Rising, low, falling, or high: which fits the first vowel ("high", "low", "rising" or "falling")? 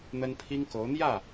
high